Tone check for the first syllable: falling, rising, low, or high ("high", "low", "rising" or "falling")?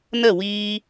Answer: falling